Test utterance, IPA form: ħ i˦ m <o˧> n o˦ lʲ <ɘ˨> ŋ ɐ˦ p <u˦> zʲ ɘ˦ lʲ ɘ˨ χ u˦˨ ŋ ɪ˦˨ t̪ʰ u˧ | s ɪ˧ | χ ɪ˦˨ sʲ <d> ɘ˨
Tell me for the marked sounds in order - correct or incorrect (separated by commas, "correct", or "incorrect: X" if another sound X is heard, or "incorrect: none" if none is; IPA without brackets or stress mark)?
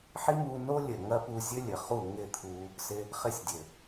incorrect: u˧, correct, incorrect: u˧, incorrect: dʲ